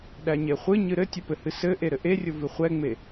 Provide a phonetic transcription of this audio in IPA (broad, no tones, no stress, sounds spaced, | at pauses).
ɗ æ ɲ e χʷ ɨ ɲ ɨ ɾ ɘ tʲ ʊ p ɘ h ɨ s ɘ ʔ e ɾ ɘ ʔ e rʲ ʊ v ɨ χʷ ɛ ŋ͡m e